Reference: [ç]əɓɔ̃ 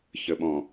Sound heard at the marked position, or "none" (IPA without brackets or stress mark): ç